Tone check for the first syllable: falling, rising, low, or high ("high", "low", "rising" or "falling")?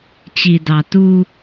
low